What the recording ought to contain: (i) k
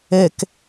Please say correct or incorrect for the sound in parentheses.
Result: incorrect